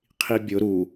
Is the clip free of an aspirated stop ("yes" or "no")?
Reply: no